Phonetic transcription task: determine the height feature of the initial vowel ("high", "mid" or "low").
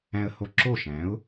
low